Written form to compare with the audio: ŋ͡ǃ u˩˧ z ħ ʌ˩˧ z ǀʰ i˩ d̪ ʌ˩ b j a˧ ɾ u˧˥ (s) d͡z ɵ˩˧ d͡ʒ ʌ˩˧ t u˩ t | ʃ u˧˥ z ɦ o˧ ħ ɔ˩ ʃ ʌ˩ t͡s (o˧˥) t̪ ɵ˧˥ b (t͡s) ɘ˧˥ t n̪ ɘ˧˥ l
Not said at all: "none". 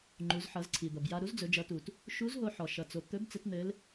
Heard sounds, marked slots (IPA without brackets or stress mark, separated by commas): z, o˩, t͡s